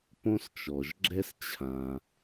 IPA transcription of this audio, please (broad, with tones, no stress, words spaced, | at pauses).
põ˥st͡ʃɔ˩ʒɡ͡ǁɛ˥st͡ɕʰã˩